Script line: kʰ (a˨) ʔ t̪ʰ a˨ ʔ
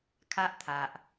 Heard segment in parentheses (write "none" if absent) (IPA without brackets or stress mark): a˦